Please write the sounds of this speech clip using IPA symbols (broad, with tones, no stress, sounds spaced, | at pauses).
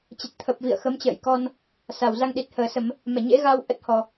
t͡ɕ ə˨˩ t̚ t̪ʰ ə˨˩ p̚ v ḭ˧˨ ə̯ x ə˨˦ m t͡ɕ ə̰ː˧˨ j k ɔ˧ n | s a˨˩ w z a˧ ŋ ɗ i˨˩ t̚ h əː˨˩ s ə˧˩˨ m | m ɛ˧˩ ɲ ḛ˧˥ ɣ a˧ w ʔ ə˦˥ t̚ h ɔ˨˩